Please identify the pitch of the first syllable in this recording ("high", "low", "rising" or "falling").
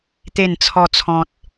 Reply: falling